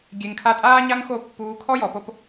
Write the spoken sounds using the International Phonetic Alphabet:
ɡʲ e˨ ŋ kʰ a˧ tʼ aː˦ ɲ a˦ ŋ x o˦˨ pː uː˧ kʰ ɔ˦ j ɔ˨ p o˧ p

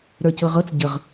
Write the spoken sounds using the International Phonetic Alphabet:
ɾ ə˞ c ɤ ʁ ɤ t͡s ɟ ə ʁ

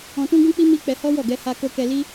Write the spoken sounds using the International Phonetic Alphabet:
ɔ̃˧ t ũ˦ ɡ ũ˦ k͡p i˦ m i˦ k͡p ɛ˧ h ɔ˦ w ɔ˦˨ ɡ ɛ˧ h a˧ k o˧ k ɛ˧ l i˦

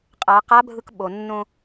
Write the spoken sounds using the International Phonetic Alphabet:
qʼ a˩˧ q a˧˥ bʱ ɯ˧ k ɓ o˩ nː õ˧

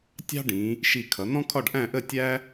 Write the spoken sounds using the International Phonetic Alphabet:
tʲ ɑ̤˥ ɖ ĩ˩˧ | ʃ i˧˩ kʰ ʌ˩˧ n̪ ɔ̃˥ kʰ ɒ˥˧ ɖ ʔ æ̃˥˧ ʔ ə˥˧ tʲ æ˥

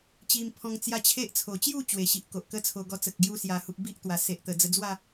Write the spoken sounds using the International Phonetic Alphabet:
t͡ɕ i˧ m pʰ ɔ̃˧ ŋ t͡s j a˦ t͡ɕʰ e˦ ʔ t͡sʰ o˨˩ t͡ɕ j u˥˧ t͡ɕ w e˨˩ ɕ i˨ ʔ k o˨ ʔ k ə˦ t͡sʰ o˧ ɡ ɔ˧ t͡s ə˨ k̚ ɡ j u˧ s j a˨˩ h u˨ p̚ b i˦ ʔ t̪ w a˨˩ s e˨ ʔ t̪ ə˨˩ d͡z ə˧ d͡z w a˥˧

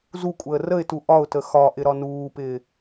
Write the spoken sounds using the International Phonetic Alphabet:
z u kʷʼ əː r ə ɪ̯ t u ʔ ɒ ʊ̯ t ə x ɒ ʔ ɪ ɾ ɒ n uː p ɪː

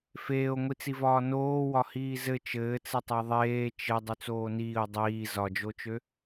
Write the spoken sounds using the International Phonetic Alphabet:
f eː o̯ ŋʷ i t͡s i v ɒː n oː w ɒ h iː z ɘ t͡ʃ ɘː t͡s ɘ tˤ e ðˤ eː t͡ʃ ɘ dˤ y t͡s oː n iː o̯ dˤ iː z ɒ d͡ʒ o t͡ʃ ø

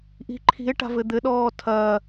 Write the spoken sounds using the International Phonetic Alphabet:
ʔ i̤ ǃʰ i̤ e̯ ʈ a̤ v ɘ d̪ ɘ ɗ ɔː tʰ ɐː

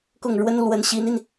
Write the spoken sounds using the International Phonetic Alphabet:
k ʊ˥˩ ŋ ɻ w ə˥ n l w ə˧˥ n ɕ i˧˥ n i˧ n

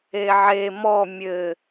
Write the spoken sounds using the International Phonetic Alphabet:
e ʕ e m ɔ mʲ ɘ

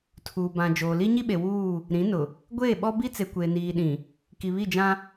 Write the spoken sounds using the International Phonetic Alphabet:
tʰ uː˨ b ã˨ d͡ʒ oː˨ l i˦ ɲ i˦ ɓ e˨ w uː˦˨ | ɾ ĩ˨˦ n ʊ˨ | ɡʷ eː˦˨ ɓ ɔ˦ b i˦ t͡s e˨ kʷ eː˨ n iː˨ ɗ ĩ˨ | k i˨ β i˦˨ d͡ʒ ã˦

